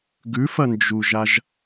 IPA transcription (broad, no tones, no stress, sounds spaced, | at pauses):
ɡ ʉ f ɐ n d͡ʒ u ʒ a ʒ